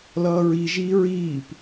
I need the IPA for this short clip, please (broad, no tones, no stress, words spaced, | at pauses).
lʌːɹiʒiː ɹiːp